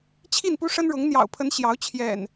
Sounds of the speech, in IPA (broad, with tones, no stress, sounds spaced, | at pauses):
t͡ɕʰ i˥˨ n p u˦ ʂ ə˦ n ɻ ʊ˨˦ ŋ n̪ j ɑ̰˨˩ ʊ̯ pʰ ə˨˦ n ɕ j ɑ˨˦ ʊ̯ t͡ɕʰ j ɛ̰˨˩ n